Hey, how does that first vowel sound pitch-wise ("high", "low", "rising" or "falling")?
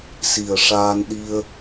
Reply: low